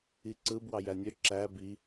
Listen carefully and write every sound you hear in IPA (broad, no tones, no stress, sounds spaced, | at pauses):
i ǀ ɯ b w ɑ j æ nʲ ø ǁ æ b i